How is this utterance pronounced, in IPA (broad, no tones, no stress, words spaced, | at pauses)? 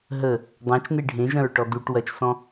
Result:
ɦə | dˤãt͡ʃne ɖʱẽʒɐ̃ɹʈɔ duʈ wɐt͡ʃsɔ̃